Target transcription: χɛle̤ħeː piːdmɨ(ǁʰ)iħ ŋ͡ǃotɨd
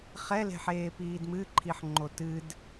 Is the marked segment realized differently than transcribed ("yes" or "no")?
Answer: yes